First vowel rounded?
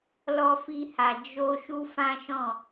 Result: yes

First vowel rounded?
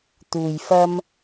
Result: yes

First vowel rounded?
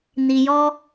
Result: no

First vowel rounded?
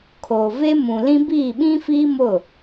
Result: yes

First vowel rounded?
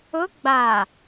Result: yes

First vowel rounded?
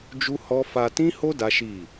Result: yes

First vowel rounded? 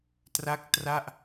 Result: no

